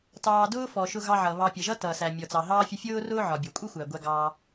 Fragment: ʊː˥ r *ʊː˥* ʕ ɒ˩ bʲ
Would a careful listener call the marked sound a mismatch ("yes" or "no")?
no